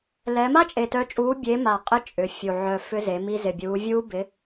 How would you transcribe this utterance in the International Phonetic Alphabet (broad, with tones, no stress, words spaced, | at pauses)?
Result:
lɛ˨˦ ma˦˥t͡ʃʼe˨˩tœ˨˦t͡ʃʼuː˨˦ bʲe˨˦ma˨˩ qʼɪ˨˦ t͡ʃʼʏ˨˩fʲu˨˩ ʕœ˨˩ fʏ˦˥ze˨˦mi˦˥ zɪ˨˩bʲuː˨˦vʲuː˦˥ bɪ˨˦